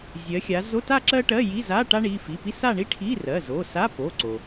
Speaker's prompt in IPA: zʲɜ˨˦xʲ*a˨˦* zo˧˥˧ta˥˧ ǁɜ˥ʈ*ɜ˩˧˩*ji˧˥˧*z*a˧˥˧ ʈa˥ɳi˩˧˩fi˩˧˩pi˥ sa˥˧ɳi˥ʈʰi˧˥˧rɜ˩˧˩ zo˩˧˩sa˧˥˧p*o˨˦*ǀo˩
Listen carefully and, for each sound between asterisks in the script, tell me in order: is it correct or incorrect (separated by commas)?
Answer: correct, incorrect, correct, incorrect